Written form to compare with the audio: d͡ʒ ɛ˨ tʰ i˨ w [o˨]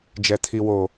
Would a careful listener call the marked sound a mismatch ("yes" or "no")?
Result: no